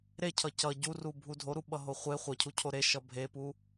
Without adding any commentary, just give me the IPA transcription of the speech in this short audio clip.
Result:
ɾ e cʰ ʌ c ʌ ɟ u r u bʱ u dʱ o ɾ u ɓ ʌ ɦ o χʷ e χʷ ʌ cʰ u cʰ o ɾ e ʃ ʌ bʱ e p u

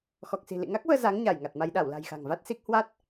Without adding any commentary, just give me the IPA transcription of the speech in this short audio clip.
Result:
x ɔ˨˩ k̚ s i̤˨˩ l ḭ˧˨ ŋ a˦˥ k̚ v əː˧ z a˨˦ ŋ ɲ a˧˩ j ŋ a˨˩ t̚ m a˧ j ɗ a˧˩ w l a̤˨˩ j x a̤˨˩ ŋ v a˦˥ t̚ s i˦˥ k̚ h w a˦˥ t̚

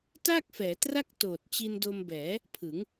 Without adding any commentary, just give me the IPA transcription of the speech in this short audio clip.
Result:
t aː˥˩ k̚ f ɛː˩˦ t r a˥˩ k̚ t oː˨˩ t̚ t͡ɕ i˧ n d o˧ m b ɛː˩˦ | pʰ ɯ˩˦ ŋ

